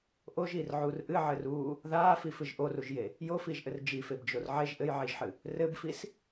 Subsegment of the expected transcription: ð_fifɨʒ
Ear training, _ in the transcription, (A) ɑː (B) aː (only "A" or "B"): B